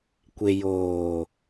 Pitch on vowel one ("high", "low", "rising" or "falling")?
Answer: low